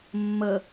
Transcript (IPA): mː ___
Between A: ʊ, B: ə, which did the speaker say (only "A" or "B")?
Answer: B